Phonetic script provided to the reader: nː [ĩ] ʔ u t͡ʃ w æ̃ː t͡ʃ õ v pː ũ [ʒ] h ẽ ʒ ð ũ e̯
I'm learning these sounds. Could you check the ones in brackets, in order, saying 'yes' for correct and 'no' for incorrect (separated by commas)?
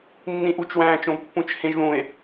yes, no